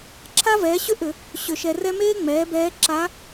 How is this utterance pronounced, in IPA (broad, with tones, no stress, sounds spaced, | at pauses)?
ǁʰ a˥ v ɛː˩˥ ɕ ʏ˥ ʔ ʏ˧˩˧ | ɕ ʏ˧˩˧ ʃ ɛ˧ r ɛ˥ m eː˥ ŋ͡m ɛː˩˥ b ɛː˧˥ ǁ a˧˥